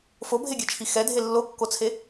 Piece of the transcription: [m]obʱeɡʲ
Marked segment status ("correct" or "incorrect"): incorrect